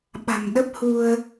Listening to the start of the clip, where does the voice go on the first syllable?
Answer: low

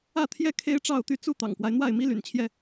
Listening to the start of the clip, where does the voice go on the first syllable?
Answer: falling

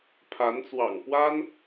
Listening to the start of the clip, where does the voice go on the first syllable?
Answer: rising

